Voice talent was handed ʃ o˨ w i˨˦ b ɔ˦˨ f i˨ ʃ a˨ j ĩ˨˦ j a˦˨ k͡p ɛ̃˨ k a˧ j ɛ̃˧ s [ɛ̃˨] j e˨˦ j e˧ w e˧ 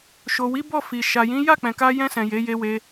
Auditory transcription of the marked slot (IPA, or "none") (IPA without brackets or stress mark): ɛ̃˨